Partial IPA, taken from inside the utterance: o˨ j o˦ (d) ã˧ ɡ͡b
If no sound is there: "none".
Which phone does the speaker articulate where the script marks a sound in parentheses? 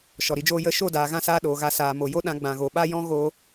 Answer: ɗ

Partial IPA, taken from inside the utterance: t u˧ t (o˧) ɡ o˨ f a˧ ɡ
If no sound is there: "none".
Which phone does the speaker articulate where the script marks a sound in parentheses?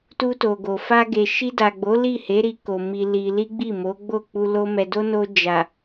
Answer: o˨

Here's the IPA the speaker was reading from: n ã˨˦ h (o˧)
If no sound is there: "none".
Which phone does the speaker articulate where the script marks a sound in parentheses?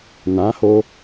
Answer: o˧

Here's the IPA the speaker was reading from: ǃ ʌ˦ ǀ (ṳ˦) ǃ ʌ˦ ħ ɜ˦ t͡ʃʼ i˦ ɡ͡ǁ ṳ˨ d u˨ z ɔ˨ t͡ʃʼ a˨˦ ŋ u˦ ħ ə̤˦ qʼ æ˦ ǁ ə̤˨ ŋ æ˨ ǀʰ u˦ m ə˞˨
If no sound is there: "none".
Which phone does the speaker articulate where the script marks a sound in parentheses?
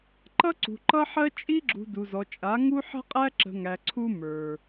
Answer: ṳ˨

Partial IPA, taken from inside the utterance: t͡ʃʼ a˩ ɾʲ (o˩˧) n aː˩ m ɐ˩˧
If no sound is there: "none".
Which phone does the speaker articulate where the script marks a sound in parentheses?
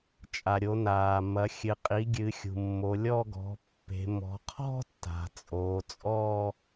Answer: o˩˧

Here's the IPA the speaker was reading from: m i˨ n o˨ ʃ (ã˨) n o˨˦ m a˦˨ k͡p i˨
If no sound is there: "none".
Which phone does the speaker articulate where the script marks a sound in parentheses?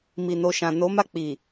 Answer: ã˨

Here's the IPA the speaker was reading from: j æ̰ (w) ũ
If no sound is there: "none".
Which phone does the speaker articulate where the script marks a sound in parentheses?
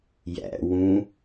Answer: w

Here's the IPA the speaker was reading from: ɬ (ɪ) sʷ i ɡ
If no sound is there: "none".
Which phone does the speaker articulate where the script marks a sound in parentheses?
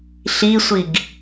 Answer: i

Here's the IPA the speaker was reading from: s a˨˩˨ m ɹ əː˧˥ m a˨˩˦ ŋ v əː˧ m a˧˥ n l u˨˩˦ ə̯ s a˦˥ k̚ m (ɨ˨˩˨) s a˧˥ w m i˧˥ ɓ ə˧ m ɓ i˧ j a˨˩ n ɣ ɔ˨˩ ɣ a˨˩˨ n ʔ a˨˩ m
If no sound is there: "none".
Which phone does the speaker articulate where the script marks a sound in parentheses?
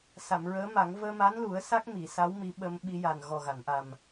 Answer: i˨˩˨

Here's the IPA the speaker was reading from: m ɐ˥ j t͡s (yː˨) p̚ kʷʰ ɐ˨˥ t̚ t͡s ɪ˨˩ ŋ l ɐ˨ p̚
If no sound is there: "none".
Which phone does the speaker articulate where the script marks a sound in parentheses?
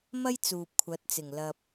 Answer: uː˨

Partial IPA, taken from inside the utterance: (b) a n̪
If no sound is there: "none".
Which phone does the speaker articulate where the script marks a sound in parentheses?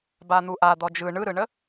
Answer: b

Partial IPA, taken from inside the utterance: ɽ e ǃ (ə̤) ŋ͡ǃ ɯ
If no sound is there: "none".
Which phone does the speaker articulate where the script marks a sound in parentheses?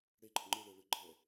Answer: ə̤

